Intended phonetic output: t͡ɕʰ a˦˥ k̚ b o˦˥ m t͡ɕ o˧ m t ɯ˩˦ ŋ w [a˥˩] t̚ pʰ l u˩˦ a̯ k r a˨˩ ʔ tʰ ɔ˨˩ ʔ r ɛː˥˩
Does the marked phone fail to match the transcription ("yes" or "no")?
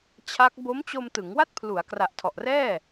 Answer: no